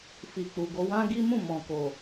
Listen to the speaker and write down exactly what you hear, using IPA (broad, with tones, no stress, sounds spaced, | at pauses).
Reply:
f i˨ k͡p u˨ ɡ o˧ w ã˦ ɡ i˦ m ũ˦˨ m ɔ̃˨ k o˨